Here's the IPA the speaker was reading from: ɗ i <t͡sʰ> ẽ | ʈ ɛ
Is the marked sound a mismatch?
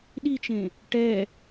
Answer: yes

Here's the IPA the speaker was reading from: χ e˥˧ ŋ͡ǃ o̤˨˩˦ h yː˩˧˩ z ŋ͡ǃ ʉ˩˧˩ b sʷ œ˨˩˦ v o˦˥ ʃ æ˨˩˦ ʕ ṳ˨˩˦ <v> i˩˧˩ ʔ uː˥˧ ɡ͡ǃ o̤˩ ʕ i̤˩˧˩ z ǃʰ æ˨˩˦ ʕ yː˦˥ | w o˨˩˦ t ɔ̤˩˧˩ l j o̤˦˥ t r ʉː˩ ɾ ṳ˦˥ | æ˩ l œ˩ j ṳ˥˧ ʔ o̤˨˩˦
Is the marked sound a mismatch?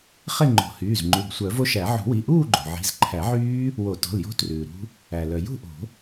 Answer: yes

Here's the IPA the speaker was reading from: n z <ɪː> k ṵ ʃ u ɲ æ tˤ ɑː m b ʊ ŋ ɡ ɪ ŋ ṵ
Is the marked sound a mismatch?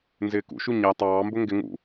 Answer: no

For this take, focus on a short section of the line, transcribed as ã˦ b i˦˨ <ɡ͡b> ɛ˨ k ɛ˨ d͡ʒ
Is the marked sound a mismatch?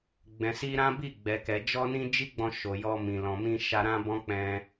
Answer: no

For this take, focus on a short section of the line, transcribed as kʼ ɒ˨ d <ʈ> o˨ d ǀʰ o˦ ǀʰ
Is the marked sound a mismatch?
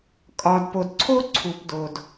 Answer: yes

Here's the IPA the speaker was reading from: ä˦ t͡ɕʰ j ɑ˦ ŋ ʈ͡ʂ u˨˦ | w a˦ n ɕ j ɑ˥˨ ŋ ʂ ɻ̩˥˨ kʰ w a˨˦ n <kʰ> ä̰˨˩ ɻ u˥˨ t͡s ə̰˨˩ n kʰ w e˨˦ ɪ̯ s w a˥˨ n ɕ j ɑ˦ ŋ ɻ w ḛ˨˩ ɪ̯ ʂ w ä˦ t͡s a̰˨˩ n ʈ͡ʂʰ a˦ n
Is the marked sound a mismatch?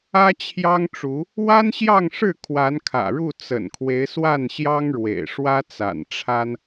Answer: no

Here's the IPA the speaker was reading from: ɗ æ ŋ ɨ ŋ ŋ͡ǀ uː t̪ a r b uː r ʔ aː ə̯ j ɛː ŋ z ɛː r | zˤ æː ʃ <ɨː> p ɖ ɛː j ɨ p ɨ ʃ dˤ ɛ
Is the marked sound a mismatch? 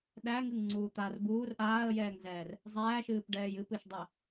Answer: no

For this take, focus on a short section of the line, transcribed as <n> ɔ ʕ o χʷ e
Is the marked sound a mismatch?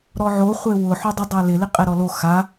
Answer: yes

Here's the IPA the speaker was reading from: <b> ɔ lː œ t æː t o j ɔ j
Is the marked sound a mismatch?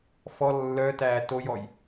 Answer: yes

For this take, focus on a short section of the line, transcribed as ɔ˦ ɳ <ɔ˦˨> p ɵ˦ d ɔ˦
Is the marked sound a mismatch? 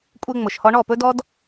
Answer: no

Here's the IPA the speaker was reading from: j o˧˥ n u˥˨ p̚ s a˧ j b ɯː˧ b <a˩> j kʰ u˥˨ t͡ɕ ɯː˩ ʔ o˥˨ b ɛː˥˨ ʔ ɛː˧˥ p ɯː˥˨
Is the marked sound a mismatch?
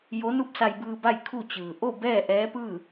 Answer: yes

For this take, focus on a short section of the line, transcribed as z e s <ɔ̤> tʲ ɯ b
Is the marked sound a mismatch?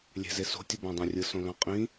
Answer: yes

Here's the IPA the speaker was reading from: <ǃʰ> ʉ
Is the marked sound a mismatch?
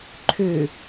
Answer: no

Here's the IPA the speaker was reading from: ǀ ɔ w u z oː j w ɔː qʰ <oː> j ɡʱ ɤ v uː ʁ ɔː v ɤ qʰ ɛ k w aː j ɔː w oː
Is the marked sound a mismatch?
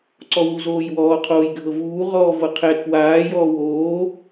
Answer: no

